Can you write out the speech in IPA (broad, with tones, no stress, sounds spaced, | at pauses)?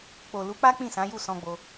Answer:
k͡p o˨ l u˨˦ k͡p a˦ k͡p ĩ˦˨ s ã˨˦ j u˦˨ s ɔ̃˧ ɡ͡b o˧